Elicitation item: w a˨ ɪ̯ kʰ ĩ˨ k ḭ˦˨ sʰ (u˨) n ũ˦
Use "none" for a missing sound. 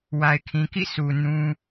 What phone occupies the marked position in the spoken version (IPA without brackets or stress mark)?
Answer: u˨